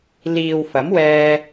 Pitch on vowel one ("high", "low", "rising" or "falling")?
low